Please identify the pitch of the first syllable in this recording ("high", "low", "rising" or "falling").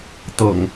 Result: low